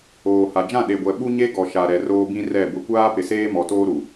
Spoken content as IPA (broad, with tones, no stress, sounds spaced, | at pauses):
oː˨ h a˨ d͡ʒ ã˦˨ ɗ e˨ ɡʷ ɛ˨ ɓ u˦ ɲ e˦ ɡ ɔ˨ ʃ a˨ ɾ ɛ˨ r oː˦ b ĩ˦ r ɛ˦˨ b ʊ˦ kʷ aː˦ p ɪ˨ s eː˦ m ɔ˨ t oː˦ ɾ u˨